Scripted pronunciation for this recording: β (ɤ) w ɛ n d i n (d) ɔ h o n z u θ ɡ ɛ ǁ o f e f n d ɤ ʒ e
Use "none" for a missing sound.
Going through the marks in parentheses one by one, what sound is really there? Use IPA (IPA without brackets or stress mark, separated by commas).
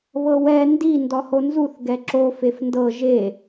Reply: ɤ, d